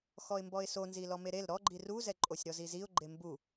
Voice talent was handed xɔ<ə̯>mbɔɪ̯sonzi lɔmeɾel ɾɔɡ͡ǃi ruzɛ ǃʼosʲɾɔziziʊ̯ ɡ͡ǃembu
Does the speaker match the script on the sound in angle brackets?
no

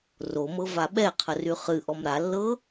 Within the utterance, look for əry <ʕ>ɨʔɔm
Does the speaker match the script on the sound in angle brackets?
no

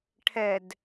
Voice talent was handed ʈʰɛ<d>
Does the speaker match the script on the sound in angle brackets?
yes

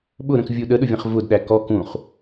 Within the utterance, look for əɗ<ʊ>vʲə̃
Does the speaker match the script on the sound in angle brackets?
yes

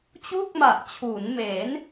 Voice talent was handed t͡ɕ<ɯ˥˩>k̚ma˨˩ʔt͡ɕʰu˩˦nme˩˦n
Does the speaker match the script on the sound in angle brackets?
no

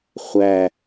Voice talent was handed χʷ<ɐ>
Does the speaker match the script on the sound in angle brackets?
no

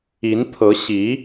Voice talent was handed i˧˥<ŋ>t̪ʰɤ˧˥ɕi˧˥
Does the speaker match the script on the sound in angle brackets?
no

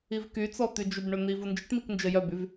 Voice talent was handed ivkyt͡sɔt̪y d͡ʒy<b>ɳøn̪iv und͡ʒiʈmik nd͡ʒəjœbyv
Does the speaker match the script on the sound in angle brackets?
yes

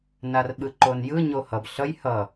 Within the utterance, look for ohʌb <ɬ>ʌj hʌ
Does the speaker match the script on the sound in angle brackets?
yes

